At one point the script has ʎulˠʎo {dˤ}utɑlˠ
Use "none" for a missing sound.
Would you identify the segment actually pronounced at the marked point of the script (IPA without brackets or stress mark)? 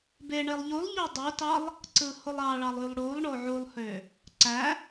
dˤ